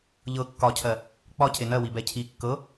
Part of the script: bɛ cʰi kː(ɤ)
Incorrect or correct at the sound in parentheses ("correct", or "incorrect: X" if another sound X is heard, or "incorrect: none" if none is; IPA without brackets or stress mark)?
correct